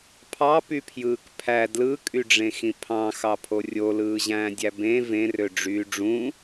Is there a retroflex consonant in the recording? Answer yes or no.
yes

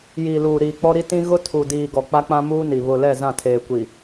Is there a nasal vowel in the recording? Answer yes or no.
yes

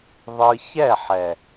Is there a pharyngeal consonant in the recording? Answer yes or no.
yes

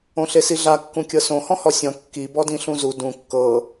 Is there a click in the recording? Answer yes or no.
no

